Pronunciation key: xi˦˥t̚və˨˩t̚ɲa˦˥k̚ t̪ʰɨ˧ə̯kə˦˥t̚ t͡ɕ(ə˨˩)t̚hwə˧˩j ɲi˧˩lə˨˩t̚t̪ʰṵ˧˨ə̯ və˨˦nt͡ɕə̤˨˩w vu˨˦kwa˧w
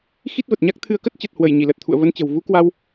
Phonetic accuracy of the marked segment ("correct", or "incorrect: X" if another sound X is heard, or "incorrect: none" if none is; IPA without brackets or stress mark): correct